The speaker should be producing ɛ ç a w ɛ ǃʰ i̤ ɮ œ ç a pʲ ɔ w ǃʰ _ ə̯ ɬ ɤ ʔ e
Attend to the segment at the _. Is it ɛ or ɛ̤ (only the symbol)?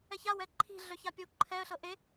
ɛ